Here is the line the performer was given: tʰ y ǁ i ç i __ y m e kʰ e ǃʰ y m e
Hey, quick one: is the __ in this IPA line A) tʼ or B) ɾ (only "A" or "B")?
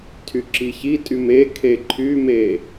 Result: A